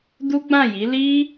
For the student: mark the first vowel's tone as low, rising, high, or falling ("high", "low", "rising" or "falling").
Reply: high